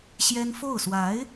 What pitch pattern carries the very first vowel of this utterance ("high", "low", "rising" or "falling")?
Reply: high